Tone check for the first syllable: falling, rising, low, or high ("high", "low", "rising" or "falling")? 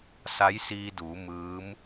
rising